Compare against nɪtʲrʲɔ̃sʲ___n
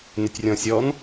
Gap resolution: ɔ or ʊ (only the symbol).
ɔ